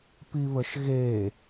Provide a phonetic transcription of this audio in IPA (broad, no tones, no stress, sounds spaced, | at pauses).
p i β ə ʃ ɣ e